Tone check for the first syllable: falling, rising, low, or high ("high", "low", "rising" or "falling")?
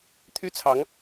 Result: high